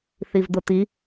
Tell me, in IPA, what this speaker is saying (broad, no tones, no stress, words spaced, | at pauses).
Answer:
θivd̪ʊt̪i